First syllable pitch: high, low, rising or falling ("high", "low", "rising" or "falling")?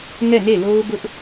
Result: falling